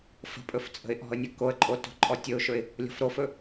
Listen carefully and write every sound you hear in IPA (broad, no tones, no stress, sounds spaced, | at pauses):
f ə̤ pʼ ɵ f t͡sʼ ə̤ ɪ̯ ʔ ɔ̤ ə̯ nʲ ə k o ə̯ ǃʼ o t o̤ ǃʼ ɔ tʲ ɵ ʊ̯ ʃ ɵ ɪ̯ | lʲ ɔ̤ f ɾ o f ɵ